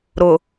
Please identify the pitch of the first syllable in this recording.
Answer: low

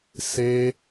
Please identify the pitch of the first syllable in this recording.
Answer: high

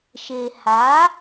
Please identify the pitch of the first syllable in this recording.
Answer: low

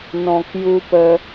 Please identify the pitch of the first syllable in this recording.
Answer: low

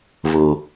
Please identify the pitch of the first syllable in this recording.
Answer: low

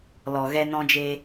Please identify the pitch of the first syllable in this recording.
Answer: low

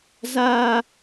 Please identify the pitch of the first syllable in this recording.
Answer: high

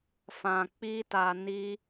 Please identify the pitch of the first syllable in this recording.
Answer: low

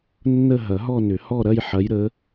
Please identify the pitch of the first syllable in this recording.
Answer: falling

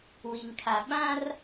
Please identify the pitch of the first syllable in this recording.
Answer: low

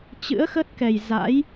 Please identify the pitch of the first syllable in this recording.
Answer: rising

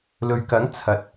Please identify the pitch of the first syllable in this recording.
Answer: low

